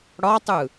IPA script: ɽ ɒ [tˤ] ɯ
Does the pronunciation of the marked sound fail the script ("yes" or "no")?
no